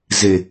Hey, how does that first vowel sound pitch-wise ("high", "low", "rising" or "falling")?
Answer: low